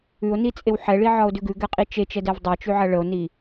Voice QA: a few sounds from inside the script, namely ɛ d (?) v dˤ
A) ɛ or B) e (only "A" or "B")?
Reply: A